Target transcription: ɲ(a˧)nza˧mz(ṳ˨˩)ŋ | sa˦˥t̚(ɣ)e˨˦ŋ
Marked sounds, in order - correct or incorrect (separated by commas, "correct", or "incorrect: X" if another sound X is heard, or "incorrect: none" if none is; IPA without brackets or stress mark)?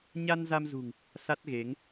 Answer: correct, correct, correct